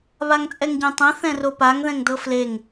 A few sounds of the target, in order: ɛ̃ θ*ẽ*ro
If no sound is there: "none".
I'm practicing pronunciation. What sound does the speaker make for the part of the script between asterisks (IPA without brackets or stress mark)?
ɛ̃